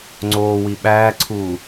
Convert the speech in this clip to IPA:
ŋ͡ǀ oː w i ɓ æː ǀʰ uː

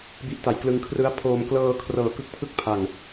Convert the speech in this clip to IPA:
b i˦˥ ʔ t a˩˦ j k l ɯ˧ ŋ kʰ r ɯ˦˥ a̯ pʰ oː˧ m k l ɤː˧ kʰ r ɤː˨˩ k ɯ˥˩ k̚ pʰ ɯ˥˩ k̚ pʰ a˨˩ ŋ

